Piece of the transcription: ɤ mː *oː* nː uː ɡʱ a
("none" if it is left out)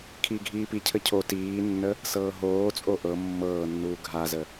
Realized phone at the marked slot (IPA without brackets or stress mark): ɤː